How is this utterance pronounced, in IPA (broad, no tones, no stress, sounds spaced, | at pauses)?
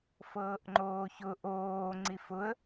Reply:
f ɤː ʔ ŋ͡ǃ oː ç ʊ ʔ oː ŋ͡ǀ i f ʊ ə̯